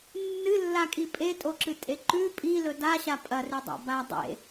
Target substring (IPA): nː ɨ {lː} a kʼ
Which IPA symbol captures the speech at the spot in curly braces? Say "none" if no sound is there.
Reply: lː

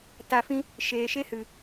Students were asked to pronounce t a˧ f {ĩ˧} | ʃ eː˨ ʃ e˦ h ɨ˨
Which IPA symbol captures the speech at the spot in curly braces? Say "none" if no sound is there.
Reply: ĩ˦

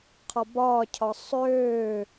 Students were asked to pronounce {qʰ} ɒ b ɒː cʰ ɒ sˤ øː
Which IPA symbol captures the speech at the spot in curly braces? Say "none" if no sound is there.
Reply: qʰ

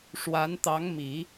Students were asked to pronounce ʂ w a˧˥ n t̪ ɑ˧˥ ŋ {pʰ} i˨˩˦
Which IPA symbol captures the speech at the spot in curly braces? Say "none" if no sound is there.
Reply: m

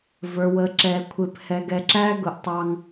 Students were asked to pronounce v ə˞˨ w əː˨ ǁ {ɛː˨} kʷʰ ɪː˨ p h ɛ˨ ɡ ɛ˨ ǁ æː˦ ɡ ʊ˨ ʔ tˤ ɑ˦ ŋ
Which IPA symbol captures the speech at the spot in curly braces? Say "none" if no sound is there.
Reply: ɛː˨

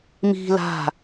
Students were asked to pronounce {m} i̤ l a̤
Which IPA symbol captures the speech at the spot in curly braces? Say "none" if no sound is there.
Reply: m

